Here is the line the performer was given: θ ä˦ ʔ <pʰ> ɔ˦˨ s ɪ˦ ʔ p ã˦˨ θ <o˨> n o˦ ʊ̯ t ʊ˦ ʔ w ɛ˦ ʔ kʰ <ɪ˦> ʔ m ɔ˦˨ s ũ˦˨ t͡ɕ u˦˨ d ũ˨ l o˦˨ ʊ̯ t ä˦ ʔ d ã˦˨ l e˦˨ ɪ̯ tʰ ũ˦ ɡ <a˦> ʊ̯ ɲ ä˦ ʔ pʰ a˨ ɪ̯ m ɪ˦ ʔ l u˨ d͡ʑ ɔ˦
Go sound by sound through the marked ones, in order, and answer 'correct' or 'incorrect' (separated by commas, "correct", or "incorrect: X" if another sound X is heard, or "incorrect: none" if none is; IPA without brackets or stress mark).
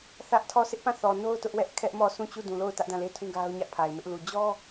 incorrect: tʰ, incorrect: ɔ˨, incorrect: ɛ˦, correct